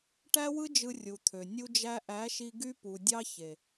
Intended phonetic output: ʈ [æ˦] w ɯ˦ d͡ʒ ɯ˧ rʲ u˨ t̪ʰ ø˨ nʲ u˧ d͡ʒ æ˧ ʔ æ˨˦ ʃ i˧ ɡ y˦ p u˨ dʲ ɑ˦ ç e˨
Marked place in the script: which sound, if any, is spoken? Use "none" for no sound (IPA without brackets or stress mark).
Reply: æ˦